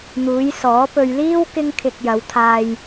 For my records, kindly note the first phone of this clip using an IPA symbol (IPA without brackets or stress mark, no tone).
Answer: n̪